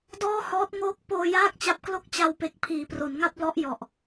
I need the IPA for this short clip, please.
d ɔː˥˩ h ɔː˦˥ t̚ ŋ oː˦˥ k̚ p oː˧ j aː˥˩ k̚ t͡ɕ a˦˥ p̚ k l o˥˩ k̚ t͡ɕ a˧ w p e˨˩ k̚ pʰ iː˩˦ p r o˩˦ n ŋ a˥˩ p̚ l ɔ˦˥ ʔ j ɔ˨˩ ʔ

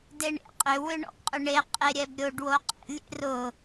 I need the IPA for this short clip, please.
d e ɳ ḛ qʼ ʏ w ʏ ɳ ɔ̰ ɡ qʼ ʏ ɳ e qʼ e ɾʲ ɛ b ɾʲ o ɖ w o qʼ ḛ lʲ ḛ r ʊ

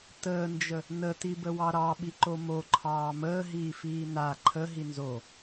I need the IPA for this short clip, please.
t əː n d͡ʒ ə | n ə t i b ə w ɑ ɾ ɑ ɓ i ǃ o m o ǃʰ ɑː m əː ɦ iː f iː n a ǃʰ ə ɦ i n z o

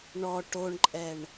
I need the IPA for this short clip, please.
ɳ ɔ ʈ o ɳ ǃʼ ɛ ɳ

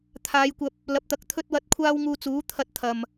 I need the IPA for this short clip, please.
t̪ʰ aː˨˧ j kʷ ɐ˧ p̚ | l ɐ˨˥ p̚ t̪ ɐ˨˥ k̚ t̪ʰ ɵ˧ t̚ w ɐ˨˥ t̚ kʷʰ aː˧ w ŋ uː˧ t͡s uː˨˥ t̪ʰ ɐ˧ t̚ t̪ʰ ɐ˨ m

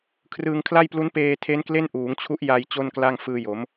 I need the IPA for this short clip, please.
kʰ r ɯː˧ ŋ kʰ l a˥˩ j p l u˦˥ n p eː˧ tʰ e˦˥ n k l e˥˩ n ʔ uː˩˦ ŋ t͡ɕʰ u˦˥ ʔ j a˧ j t͡ɕ o˥˩ n k l a˥˩ ŋ f ɯː˧ j o˩˦ m

